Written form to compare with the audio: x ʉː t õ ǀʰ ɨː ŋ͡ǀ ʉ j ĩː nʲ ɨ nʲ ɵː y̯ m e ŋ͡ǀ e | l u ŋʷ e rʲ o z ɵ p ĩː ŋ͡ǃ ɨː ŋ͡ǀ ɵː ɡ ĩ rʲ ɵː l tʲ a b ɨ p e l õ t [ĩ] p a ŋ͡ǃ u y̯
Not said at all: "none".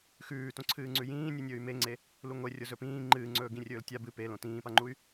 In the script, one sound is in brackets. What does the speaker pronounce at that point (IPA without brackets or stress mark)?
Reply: ĩː